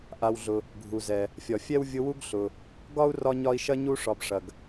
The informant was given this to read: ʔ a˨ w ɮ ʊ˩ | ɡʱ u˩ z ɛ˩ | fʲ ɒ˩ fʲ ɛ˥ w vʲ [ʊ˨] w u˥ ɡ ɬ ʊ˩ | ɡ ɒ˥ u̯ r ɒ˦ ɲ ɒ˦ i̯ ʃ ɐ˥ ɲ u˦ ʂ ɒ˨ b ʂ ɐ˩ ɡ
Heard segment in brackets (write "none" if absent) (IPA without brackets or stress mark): ʊ˦